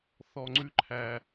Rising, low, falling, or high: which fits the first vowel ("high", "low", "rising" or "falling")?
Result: low